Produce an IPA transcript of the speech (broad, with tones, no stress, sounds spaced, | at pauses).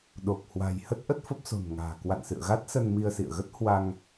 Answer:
ɗ o˨˩ k̚ h w a̤˨˩ j h ə˦˥ t̚ ʔ ə˦˥ t̚ f ə˦˥ p̚ s o̤˨˩ n ŋ a̤ː˨˩ k w a̰˧˨ n s ɨ̰˧˨ ə̯ ɣ a˦˥ t̚ s ə˧ n m i˧ ə̯ s ḭ˧˨ ə̯ ɣ ə˦˥ t̚ h w a˧ ŋ